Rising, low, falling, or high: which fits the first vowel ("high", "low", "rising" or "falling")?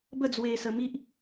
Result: falling